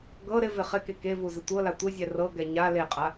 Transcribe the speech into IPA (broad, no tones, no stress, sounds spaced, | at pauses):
ɡ ɤ ɾ ɪ v ɪ χ ɪ k e k e v u z ɪ tʷ ɤ l a tʷ ɪ zʲ ɛ r ɤ ɡ ɛ ɲ a l e qʼ a